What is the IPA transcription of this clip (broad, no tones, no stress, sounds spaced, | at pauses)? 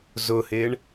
z ʊ h ɪ ɳ